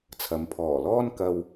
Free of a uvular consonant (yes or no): yes